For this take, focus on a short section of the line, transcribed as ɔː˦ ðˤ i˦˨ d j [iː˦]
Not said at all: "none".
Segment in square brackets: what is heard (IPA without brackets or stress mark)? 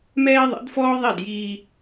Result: iː˦